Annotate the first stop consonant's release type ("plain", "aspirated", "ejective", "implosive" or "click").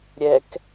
plain